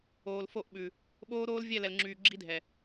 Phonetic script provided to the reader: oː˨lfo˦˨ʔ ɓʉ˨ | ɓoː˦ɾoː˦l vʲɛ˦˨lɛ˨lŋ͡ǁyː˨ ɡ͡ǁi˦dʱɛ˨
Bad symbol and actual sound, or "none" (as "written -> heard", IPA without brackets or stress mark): none